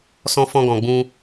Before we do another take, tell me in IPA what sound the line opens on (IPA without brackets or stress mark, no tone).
s